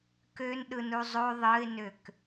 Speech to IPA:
k ø n ɗ ɯ n u zˤ o ðˤ ɯ ɪ̯ n ø k

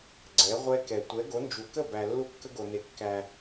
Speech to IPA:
ɡ͡ǀ ɛ˨˦ ʁʷ ɛ˦ k ɛ˨ tʷ ɛ˨˦ ɡ o˨˦ n d͡ʒ u˨ k ə˥˨ b æ˨ lː u˦ kː ə˦ ɡ o˨ n e˨ kː æ˨

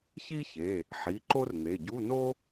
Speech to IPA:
ç i˥ ç e˩˧˩ | ħ i˩˧˩ ǃ o˥ r n̪ e˩˧˩ ɟ u˧˥˧ n o˥

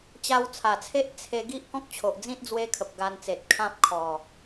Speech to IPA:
t͡ɕ a˧ w t͡sʰ a˨˩ t͡sʰ e˦ ʔ t͡sʰ e˧ ɡ i˦ ʔ k ɔ̃˦ k̚ t͡ɕʰ o˨ ʔ d͡z ĩ˦ t̚ d͡z w e˦ kʰ ə˨ p̚ ɡ a˧ n t͡s e˨ t̚ kʰ ã˦ p̚ kʰ ɔ˨˩

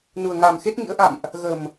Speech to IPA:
n u˨˩ ə̯ ŋ a˨˩ m x e˦˥ t̚ ŋ ḭ˧˥ ə̯ ʔ a̰˧˨ m ʔ | ɣ ə˨˩ m

